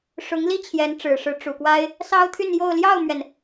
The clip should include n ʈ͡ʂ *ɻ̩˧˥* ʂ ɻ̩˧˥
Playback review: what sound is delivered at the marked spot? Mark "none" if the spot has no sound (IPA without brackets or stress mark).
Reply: ɻ̩˨˩